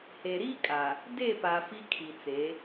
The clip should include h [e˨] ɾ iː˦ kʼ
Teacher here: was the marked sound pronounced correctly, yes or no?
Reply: yes